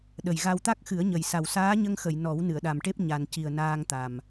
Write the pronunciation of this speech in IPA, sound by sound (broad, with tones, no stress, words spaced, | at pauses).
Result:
ɗə˨˩jɣa˧w t̪a˦˥k̚xɨ˨˩˦ə̯ɲə˨˩jsa˨˩w saː˧˥ɲə˧ŋxə˨˩˨j nɔ˨˩˦w nɨ˨˩˨ə̯ɗa˨˩mʈe˦˥p̚ ɲa˨˩nci˨˩ə̯ naː˧ŋ t̪a˨˩m